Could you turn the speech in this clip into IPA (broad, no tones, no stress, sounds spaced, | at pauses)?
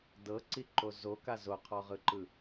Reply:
d ɤ ǀ i ǃ o z o k a z o qʰ ɔ ʁ ɯ ǃ ɯ